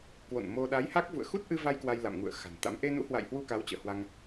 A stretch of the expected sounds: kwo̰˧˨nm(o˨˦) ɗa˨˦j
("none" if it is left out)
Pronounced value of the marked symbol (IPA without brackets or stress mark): o˧